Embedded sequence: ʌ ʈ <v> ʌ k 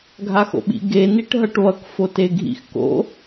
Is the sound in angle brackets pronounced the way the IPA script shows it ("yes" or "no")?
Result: no